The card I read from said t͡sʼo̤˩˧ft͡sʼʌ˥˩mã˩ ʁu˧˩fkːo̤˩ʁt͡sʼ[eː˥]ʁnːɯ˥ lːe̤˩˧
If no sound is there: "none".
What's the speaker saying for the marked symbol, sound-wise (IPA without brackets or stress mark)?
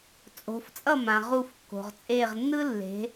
eː˧˩